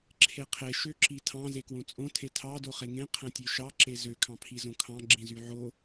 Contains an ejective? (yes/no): yes